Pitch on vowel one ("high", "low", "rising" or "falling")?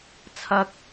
high